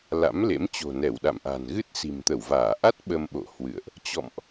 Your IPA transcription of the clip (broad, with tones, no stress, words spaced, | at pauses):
la̰˧˥mlḛ˧˥m t͡ɕo̤˨˩nɛ˧˩wɗa̰˧˨mʔa̤˨˩n ɣɨ˦˥t̚si̤˨˩mt̪ə˧˩wvaː˧˩ ʔa˦˥t̚ ɓə˧mɓo̰˧˨hwɨ̰˧˨ə̯ʔ | t͡ɕɔ̰˧˨mʔ